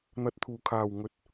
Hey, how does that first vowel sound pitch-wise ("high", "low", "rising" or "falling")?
low